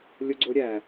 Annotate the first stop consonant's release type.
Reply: click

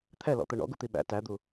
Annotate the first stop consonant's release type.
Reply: aspirated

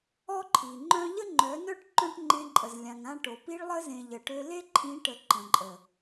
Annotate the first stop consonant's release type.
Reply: click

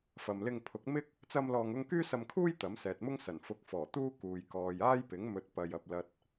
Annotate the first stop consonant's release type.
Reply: aspirated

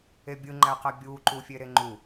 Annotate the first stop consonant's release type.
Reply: plain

